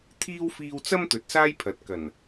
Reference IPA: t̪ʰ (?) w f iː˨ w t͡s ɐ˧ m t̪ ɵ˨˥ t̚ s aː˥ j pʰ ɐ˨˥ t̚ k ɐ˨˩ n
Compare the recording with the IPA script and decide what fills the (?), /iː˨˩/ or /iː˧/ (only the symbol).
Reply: iː˧